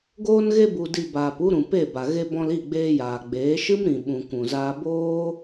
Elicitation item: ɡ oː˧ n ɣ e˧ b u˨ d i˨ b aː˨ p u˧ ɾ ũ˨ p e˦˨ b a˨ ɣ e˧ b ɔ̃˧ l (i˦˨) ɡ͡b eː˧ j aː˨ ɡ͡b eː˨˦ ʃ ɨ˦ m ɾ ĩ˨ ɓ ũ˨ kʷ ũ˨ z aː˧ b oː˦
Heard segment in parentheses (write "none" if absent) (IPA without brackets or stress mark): i˦˨